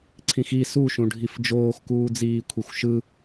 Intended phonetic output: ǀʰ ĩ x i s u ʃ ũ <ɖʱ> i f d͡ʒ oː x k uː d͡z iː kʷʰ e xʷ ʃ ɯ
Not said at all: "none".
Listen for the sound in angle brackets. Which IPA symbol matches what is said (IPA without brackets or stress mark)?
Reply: ɖʱ